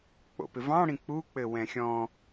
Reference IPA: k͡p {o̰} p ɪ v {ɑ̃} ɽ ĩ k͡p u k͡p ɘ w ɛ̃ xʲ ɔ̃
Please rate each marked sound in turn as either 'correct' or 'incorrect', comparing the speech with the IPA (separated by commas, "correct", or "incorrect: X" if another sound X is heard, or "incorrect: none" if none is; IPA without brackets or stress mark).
correct, correct